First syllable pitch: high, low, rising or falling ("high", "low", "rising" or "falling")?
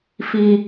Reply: high